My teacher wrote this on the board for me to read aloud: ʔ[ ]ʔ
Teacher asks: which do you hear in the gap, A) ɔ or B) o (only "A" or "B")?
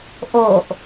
B